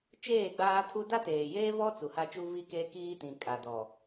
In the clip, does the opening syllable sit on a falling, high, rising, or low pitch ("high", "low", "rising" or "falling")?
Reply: falling